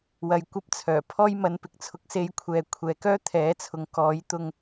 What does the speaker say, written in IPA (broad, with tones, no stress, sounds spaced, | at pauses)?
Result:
w ɐ˧ j kʷ ɐ˥ p̚ t͡sʰ œː˨˩ pʰ ɔː˥ j m ɐ˨˧ n p ɪ˨ k̚ t͡sʰ ʊ˧ k̚ s e˧ j kʷʰ ɛː˨ kʷʰ ɛː˨˧ k œː˥ t̪ʰ ɛː˨˥ t͡sʰ ʊ˨ ŋ k ɔː˨˥ j t̪ ʊ˧ ŋ